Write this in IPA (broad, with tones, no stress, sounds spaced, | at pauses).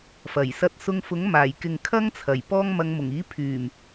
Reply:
f ɐ˨˩ j s ɐ˧ t̚ s ʊ˧ ŋ f ʊ˨˥ ŋ m aː˨˩ j k ɪ˨ ŋ kʰ ɐ˥ ŋ t͡sʰ ɐ˨˩ j p ɔː˥ ŋ m ɐ˨˧ ŋ m ʊ˨˩ ŋ iː˨˥ pʰ yː˨˩ m